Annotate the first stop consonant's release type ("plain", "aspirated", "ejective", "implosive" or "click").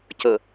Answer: plain